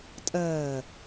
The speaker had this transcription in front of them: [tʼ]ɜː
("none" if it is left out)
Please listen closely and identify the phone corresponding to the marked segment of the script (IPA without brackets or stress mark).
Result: tʼ